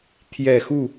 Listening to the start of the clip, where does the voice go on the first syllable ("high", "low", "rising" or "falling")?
low